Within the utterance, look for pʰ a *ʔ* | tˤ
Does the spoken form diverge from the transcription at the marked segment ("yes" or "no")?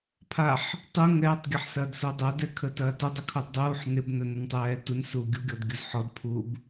yes